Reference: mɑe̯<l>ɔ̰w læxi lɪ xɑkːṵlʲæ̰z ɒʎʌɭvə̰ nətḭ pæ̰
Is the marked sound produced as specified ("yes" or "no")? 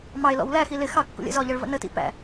yes